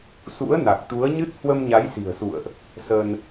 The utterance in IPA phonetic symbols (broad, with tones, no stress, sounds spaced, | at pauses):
s ṵ˧˥ ə̯ n a˨˩ k̚ t̪ u˨˦ ə̯ ɲ ɨ˦˥ t̚ h w ə˧ m ɲ a˨˦ j s i̤˨˩ ə̯ s ṵ˧˨ ə̯ ʔ | s ə˧ n